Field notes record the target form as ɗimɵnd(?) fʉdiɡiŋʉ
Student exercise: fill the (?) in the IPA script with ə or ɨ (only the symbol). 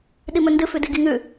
ɨ